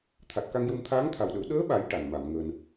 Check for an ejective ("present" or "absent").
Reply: absent